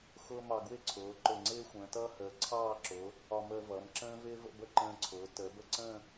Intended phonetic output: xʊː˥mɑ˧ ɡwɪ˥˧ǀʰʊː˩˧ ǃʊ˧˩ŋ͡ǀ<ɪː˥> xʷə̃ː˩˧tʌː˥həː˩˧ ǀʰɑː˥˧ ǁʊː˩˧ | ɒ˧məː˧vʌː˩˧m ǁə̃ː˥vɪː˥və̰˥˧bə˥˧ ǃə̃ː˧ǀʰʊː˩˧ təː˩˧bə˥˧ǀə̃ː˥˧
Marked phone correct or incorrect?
correct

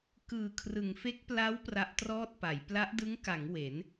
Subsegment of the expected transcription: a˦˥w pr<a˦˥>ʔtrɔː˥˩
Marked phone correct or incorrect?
correct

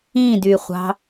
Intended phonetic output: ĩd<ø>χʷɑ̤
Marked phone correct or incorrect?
incorrect: y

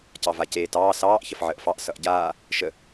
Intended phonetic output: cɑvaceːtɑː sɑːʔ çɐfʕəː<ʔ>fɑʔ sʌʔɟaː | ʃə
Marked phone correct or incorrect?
correct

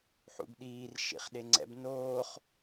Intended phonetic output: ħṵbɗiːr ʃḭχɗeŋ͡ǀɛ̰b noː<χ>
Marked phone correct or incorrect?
correct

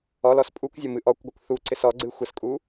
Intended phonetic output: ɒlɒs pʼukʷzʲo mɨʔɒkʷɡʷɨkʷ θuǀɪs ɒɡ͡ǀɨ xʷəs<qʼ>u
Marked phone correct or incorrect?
incorrect: kʼ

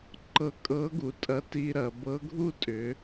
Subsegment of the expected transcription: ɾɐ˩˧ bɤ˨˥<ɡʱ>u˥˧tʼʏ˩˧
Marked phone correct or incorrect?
correct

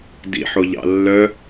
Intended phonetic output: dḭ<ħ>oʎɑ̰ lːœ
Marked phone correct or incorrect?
correct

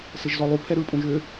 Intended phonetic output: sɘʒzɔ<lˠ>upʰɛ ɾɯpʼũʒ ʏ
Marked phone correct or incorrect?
correct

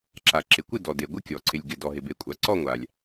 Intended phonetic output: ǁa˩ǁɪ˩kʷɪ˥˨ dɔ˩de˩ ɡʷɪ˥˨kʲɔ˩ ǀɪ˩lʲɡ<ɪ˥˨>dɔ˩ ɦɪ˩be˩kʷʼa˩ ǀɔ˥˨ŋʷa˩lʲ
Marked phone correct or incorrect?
incorrect: ɪ˩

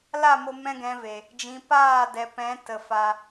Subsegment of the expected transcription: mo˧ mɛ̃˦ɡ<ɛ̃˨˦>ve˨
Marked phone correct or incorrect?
correct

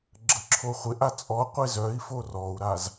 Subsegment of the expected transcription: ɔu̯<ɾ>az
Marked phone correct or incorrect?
correct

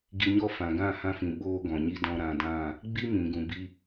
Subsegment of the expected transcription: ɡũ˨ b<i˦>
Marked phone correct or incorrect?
correct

